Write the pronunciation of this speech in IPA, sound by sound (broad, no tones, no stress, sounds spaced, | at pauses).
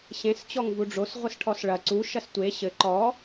ɕ ẽ s t͡ɕ ɔ ŋ v u ɖ͡ʐ o s ʁʷ ɨ s ʈʰ ɔ s ɭ ɐ ǀ u ʃ ɐ s tʷ e ɕ ɘ ǃ ɔ